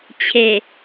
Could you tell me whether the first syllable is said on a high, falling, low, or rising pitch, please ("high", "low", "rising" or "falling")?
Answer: low